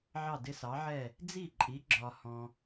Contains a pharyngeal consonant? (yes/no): yes